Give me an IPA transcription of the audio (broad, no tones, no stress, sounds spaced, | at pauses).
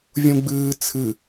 vʲ ũ ɡ͡b ɨː t͡sʰ ɨ